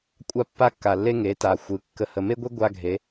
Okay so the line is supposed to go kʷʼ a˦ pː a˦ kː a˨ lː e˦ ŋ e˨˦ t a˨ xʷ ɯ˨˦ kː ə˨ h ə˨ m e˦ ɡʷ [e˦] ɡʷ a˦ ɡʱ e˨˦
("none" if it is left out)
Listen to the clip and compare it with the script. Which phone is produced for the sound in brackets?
e˦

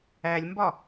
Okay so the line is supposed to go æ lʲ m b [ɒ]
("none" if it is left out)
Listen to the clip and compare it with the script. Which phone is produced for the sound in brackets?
ɒ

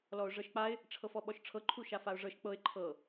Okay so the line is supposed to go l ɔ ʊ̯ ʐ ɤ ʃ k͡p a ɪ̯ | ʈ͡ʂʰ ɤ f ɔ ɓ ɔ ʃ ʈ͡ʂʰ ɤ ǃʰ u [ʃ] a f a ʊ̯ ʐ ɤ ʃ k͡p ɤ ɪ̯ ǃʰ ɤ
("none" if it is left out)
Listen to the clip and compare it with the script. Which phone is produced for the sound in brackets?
ʃ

